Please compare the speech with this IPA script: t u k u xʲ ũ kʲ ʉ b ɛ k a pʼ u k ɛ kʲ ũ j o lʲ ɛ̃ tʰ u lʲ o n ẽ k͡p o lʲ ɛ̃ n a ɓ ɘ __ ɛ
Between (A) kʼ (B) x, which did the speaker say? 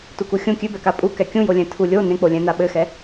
B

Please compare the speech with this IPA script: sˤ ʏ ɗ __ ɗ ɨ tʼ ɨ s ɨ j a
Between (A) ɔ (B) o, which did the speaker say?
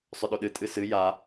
B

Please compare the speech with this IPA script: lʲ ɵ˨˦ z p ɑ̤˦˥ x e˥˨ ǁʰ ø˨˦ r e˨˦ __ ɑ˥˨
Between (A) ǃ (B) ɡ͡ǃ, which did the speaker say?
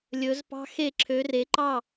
A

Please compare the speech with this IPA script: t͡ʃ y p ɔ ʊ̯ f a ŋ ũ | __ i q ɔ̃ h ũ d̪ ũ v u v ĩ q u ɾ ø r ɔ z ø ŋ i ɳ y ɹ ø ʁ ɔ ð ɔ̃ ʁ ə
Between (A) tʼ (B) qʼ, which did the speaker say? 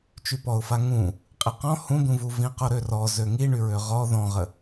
B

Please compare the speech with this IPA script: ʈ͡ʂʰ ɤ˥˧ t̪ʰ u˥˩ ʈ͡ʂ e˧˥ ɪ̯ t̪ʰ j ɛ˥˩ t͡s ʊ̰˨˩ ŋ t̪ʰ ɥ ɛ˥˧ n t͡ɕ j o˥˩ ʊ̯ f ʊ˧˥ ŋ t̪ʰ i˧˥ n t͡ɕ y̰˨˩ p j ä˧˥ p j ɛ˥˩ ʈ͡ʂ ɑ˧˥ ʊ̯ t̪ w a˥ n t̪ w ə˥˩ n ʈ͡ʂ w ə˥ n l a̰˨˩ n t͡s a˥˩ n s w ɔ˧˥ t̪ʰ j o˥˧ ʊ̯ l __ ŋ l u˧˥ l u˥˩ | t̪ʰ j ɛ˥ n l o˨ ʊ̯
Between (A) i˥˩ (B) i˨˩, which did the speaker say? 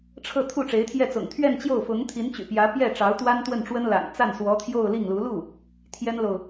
A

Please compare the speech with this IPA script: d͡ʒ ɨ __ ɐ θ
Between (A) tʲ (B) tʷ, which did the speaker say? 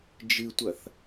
B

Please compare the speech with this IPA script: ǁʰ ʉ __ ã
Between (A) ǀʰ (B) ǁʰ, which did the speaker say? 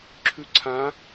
A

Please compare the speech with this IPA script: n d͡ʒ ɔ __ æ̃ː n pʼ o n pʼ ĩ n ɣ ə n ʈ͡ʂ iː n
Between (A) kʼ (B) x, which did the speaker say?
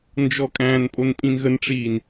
A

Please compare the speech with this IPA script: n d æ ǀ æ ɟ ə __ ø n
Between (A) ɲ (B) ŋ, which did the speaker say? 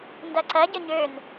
A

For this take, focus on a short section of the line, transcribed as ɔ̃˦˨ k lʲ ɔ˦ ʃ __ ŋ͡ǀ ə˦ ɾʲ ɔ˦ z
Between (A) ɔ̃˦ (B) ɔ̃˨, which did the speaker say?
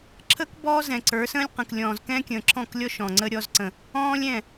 B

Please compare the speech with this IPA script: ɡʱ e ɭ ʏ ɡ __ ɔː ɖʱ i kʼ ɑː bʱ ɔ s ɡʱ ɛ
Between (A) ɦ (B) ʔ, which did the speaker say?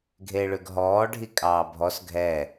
A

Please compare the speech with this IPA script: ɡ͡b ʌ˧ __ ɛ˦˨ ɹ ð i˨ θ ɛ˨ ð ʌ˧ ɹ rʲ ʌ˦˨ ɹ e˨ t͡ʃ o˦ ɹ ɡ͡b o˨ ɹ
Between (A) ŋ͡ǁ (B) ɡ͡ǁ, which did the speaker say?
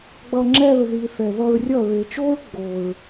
A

